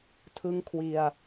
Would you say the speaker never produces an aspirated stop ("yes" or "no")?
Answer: no